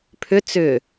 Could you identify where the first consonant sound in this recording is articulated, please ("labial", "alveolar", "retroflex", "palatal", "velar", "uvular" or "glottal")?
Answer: labial